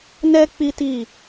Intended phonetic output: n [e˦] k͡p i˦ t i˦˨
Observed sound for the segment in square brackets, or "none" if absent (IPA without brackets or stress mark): ɛ˦